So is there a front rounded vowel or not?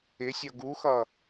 no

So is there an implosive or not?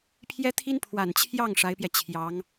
no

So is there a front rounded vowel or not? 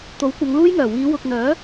yes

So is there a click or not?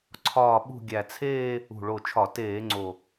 yes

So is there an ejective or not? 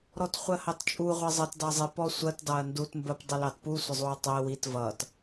yes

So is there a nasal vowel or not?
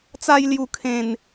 yes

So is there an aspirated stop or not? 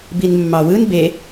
no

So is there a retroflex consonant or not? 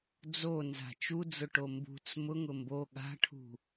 yes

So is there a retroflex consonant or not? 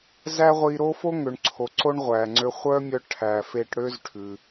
yes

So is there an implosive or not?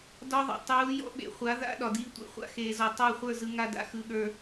yes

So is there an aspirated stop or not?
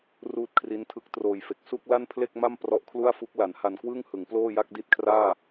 yes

